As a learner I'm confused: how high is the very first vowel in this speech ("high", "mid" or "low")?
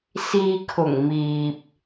high